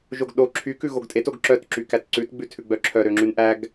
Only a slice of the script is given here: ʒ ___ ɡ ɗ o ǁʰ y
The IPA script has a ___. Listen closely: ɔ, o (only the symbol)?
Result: o